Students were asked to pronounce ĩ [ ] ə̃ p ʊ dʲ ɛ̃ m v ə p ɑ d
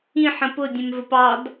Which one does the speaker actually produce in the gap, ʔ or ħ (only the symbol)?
ħ